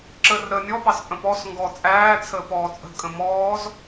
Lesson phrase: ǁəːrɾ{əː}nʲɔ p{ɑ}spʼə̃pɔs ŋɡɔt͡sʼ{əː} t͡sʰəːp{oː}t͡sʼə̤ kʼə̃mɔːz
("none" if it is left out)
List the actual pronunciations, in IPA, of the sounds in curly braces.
əː, ɑ, æː, ɔː

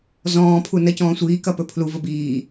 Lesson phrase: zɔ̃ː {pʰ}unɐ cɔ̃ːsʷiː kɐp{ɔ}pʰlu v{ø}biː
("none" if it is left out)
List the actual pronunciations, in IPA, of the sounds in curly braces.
pʰ, ɵ, ə

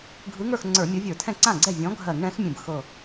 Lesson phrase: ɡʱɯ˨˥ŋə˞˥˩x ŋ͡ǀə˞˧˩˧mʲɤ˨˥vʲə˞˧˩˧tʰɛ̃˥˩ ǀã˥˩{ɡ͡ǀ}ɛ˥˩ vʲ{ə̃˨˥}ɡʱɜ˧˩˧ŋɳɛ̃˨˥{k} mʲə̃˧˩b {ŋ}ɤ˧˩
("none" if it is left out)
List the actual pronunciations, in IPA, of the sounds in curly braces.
ɡ͡ǀ, ɔ̃˨˥, x, x

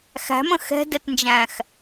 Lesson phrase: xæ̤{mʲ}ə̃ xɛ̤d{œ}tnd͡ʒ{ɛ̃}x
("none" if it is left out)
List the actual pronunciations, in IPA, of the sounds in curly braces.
m, ɛ, æ̃

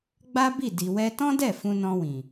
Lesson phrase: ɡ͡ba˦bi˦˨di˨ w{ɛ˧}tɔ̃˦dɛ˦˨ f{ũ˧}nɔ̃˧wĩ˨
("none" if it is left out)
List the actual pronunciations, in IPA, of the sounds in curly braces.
ɛ˧, ũ˧

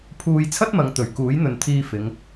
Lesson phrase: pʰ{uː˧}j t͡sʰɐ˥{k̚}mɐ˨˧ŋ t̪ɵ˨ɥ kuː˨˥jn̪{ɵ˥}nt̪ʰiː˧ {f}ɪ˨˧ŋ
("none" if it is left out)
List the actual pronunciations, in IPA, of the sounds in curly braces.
uː˧, t̚, ɵ˨, f

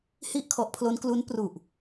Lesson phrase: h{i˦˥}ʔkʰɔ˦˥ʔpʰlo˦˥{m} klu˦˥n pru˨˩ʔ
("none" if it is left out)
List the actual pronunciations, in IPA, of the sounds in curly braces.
i˥˩, n

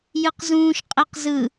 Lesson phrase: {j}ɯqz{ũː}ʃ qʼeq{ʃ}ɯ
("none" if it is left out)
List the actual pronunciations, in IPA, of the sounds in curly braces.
j, ũː, z

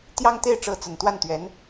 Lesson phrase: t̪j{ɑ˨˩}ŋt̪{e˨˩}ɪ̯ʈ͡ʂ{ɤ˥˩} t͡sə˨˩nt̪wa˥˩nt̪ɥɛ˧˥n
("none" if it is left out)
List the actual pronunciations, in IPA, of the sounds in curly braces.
ɑ˥, e˥˩, ɤ˧˥

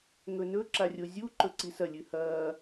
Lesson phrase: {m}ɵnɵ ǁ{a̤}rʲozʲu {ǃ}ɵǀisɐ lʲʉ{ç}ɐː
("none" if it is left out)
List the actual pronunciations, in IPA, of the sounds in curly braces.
ŋ, a, ǃ, h

